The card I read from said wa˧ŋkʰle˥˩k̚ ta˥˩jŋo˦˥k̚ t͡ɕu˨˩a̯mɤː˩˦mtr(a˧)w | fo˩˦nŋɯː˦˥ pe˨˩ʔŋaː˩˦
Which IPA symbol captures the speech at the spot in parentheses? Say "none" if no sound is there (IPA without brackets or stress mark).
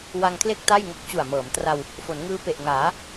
a˧